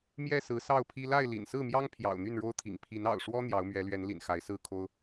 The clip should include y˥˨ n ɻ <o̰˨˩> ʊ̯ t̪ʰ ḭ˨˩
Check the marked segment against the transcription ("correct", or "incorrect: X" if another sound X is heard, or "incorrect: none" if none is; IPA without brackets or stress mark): incorrect: o˦